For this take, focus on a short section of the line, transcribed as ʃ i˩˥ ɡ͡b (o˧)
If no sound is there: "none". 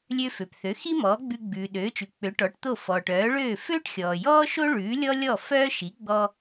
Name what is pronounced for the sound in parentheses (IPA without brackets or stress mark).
ɔ˧